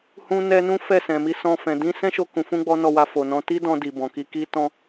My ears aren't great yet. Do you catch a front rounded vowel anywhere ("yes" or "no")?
no